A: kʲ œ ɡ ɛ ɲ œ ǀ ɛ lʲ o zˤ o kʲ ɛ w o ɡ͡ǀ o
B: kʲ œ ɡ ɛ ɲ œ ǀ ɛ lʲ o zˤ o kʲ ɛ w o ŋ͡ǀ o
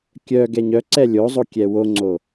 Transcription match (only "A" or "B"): B